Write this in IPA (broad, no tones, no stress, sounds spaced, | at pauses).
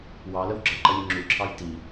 w ɑ l ə w ɡ͡ǁ ʌ ǃ ʌ lʲ ʊ ŋ͡ǁ u ǁʰ ɑ j t i